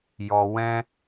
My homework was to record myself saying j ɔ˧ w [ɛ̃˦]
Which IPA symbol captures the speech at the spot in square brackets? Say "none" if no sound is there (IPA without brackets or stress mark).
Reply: ɛ̃˦